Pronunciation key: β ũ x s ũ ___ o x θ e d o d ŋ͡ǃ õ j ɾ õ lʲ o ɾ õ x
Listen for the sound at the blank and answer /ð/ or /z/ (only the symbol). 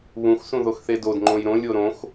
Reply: ð